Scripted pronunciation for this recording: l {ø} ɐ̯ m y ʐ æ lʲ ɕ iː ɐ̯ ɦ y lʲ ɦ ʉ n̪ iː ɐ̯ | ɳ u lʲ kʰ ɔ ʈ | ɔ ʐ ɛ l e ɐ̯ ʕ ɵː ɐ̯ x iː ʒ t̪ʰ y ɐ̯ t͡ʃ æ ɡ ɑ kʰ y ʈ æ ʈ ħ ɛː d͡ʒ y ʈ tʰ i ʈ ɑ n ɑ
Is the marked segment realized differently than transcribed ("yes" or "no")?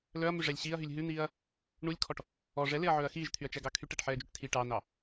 yes